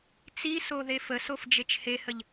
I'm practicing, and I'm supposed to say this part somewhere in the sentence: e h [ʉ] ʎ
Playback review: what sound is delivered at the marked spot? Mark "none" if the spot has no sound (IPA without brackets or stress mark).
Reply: ə